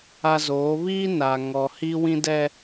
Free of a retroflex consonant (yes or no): yes